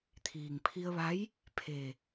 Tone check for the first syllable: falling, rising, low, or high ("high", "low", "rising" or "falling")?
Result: low